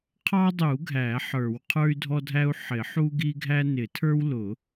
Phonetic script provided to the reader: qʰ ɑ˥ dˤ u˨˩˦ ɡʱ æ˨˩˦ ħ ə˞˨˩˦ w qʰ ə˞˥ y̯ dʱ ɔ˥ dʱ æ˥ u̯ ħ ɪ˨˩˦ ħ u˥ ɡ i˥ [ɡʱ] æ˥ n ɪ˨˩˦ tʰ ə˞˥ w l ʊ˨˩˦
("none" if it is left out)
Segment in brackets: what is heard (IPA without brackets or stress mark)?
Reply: ɡʱ